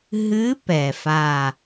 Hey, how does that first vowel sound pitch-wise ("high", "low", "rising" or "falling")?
rising